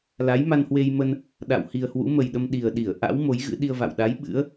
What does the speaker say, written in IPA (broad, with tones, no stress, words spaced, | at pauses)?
la˨˦jma˧nhwe˧jmə˧n | ɗa̰˧˨w hi˨˩ə̯hwṵ˧˥mə˨˩jɗə˧m ɗi˨˩ə̯ɗi˧˩ə̯ ʔa̰˧˥w mo˨˦jɣɨ̰˧˥ɗi˧ə̯va̰˧˨w ɗa˨˦j ɓɨ̰˧˥ə̯